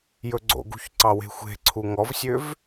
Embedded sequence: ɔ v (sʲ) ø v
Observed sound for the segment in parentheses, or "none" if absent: sʲ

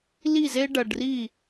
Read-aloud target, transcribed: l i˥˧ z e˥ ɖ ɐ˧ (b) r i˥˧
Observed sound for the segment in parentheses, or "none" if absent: ɖ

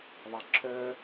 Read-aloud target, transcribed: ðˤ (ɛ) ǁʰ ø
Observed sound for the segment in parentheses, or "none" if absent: ɛ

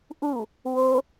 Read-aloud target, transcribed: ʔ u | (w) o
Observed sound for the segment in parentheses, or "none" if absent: w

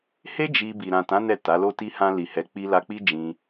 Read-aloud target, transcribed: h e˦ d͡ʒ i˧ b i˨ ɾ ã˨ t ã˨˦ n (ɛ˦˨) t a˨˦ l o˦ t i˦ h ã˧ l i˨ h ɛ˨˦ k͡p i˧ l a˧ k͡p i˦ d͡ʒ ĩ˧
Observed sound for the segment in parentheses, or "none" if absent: ɛ˦˨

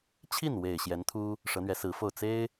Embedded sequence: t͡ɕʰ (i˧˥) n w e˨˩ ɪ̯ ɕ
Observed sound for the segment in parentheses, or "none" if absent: i˥˩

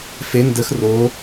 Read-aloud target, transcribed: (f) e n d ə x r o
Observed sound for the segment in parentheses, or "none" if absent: f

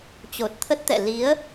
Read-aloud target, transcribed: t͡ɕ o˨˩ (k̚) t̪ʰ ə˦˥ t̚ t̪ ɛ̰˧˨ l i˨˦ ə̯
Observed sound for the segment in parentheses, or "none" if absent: t̚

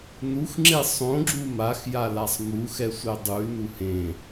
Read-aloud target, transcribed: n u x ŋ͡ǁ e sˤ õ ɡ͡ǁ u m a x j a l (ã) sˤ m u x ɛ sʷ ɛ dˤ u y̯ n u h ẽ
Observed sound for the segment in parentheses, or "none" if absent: a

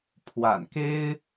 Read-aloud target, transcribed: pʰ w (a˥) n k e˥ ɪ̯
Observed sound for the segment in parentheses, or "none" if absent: a̰˨˩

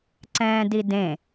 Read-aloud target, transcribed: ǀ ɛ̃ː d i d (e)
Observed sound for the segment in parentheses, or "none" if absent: ẽ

